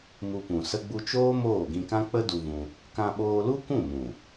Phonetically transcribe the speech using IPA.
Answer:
m u˧ p ũ˨ s ə˧ ɡ͡b u˧ t͡ʃ oː˦ m oː˦˨ ɡ ĩ˧ k ã˦ k͡p ə˦ d u˧ v ũ˧ | k ã˧ ɓ oː˧ l u˦ kʷ ũ˦˨ m ũ˨

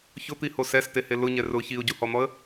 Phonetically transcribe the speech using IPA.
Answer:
ç ʊ t̪ i h o s ɛ s t e h e l ʊ ɲ ɛ r ʊ ç i ʊ̯ ɟ u h ɔ n̪ ɔ ə̯

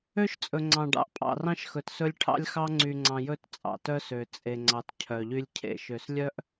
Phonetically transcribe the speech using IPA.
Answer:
ø˦ ʃ t͡sʼ ɵ˨ ŋ͡ǀ ɑ̃˨ ɖ ɑ̰˨ ʔ pʼ ɑ̰˨ r ɑ̃˦ ʃ x ɵ˨ t s ɵ˦ lʲ ʈʰ ɑ̰˦ lʲ x ɑ˦ ŋ͡ǀ y˨ ŋ͡ǀ ɑ̃˨ j ɵ˦ t t͡sʼ ɑ̰˨ t œ˦ s ø˨ t͡sʼ e˨ ŋ͡ǀ ɑ˨ t cʰ œ˨ ʎ y˦ lʲ cʰ ḛ˦ ʃ ø˨ s lʲ œ˦ ʔ

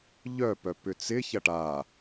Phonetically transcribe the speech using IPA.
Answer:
ʎ œ p œ p ʏ t͡s ɪ ç ɐ ʈ a

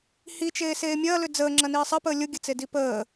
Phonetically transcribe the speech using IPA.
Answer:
h i t͡ʃ eː s eː mʲ ɐː l ʏ d͡z əː ŋ͡ǁ ɐ n iː sˤ ɐ p əː lʲ ʊ ɡʲ ə t͡s e d i p əː

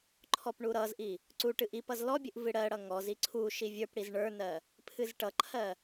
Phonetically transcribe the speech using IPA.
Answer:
ǃʰ ɔ p ɳ u ɾ ʌ z ʔ i | ǀ u ʈ ɨ ʔ i p ʌ z l ɔ bʲ ɨ ʔ v ɨ ɽ ɜ ɽ ʌ ŋ ɔ z i ǀʰ u ʃ i vʲ ə˞ p ɽ i z ɳ ə˞ n ɜ | pʰ ɨ z ʈ ʌ ǃʰ ɜ

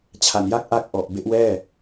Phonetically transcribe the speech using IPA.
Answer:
t͡ɕʰ a˨˩ n j a˥˩ k̚ ʔ a˦˥ k̚ ʔ ɔ˨˩ ʔ b e˦˥ ʔ w ɛː˥˩

